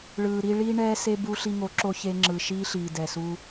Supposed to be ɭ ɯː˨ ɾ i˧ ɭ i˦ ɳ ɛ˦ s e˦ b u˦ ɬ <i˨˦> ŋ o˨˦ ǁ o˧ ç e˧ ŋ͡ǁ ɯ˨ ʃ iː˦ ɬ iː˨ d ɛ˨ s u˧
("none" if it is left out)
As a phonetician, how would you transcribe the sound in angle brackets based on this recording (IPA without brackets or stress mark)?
i˧